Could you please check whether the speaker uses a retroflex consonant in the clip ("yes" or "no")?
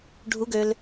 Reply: yes